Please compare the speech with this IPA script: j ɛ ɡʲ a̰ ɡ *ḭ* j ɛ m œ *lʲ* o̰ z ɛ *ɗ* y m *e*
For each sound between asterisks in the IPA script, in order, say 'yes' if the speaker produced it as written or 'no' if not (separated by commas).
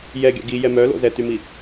no, no, no, no